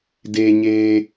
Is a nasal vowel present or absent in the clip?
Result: absent